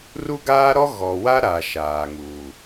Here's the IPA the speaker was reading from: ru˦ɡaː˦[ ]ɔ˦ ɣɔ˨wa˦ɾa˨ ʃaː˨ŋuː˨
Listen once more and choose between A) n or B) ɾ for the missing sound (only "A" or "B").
B